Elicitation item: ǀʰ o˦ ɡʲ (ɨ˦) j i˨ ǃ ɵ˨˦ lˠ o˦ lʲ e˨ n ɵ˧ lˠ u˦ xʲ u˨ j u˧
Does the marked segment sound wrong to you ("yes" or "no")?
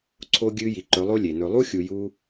no